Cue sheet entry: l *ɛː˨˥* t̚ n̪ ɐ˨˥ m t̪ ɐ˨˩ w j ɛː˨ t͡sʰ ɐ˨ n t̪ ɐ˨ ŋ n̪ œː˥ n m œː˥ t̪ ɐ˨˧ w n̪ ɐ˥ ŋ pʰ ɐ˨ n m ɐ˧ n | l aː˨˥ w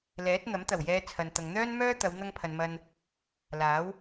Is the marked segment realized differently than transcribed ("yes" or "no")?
no